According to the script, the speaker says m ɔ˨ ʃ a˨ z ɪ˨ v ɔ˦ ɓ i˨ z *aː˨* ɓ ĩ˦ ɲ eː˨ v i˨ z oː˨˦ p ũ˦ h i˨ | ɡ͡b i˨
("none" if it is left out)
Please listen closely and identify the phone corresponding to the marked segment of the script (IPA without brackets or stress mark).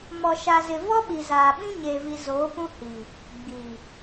aː˨